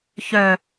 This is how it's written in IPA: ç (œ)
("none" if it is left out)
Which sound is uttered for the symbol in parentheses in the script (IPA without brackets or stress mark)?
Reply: œ